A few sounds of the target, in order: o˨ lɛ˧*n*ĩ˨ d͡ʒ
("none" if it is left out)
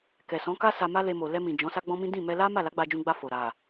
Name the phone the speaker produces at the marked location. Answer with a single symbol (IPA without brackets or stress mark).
m